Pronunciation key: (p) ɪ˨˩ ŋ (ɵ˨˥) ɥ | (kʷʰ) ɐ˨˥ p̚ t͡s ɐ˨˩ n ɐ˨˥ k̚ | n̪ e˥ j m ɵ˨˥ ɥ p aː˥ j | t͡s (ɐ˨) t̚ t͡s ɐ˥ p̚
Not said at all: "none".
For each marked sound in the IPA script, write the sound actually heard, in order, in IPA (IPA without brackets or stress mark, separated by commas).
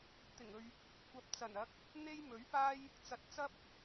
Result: t̪, ɵ˨, kʷ, ɐ˨